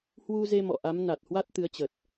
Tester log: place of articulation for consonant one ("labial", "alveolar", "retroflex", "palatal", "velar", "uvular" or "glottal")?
glottal